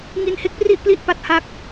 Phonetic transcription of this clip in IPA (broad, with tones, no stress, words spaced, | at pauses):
ŋi˧nhe˦˥k̚pri˥˩ʔpli˦˥ʔ pa˦˥t̚ha˥˩k̚